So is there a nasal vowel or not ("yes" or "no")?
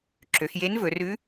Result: no